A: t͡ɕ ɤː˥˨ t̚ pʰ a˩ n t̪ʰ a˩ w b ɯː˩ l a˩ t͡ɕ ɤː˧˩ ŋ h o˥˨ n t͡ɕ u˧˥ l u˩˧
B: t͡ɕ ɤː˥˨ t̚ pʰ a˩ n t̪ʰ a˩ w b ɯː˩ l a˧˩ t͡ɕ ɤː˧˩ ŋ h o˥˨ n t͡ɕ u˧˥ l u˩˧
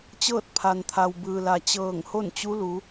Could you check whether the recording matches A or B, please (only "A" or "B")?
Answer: A